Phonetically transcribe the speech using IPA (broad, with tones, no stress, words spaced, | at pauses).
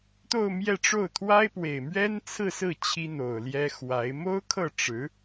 t̪o˥˧ʊ̯mjɛ˥˧ʈ͡ʂo˥˩ʊ̯ t̪ʰwa˥ɪ̯pwe˨˩ɪ̯ mɥɛ˥nt͡sʰɹ̩˥˧sɹ̩˥˩ t͡ɕʰi˥n̪o˨˩ʊ̯ljɛ˥ xwa˧˥ɪ̯ mo˥ʊ̯kʰɤ˥˩ʈ͡ʂɻ̩˧˥